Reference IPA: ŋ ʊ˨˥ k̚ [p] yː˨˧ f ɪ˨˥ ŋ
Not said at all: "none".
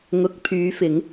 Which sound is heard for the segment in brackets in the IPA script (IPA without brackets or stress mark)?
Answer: pʰ